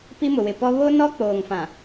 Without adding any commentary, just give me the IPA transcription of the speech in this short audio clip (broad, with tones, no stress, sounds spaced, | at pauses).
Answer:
p i˦ m ʊ˨ w ɪ˨ p ɔ˦ β o˦ n ɔ˦ k͡p oː˨ ŋ f ã˨